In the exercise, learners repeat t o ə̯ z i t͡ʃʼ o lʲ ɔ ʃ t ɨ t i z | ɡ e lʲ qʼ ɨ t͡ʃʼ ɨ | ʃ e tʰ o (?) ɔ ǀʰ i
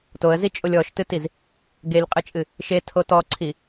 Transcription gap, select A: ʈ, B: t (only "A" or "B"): B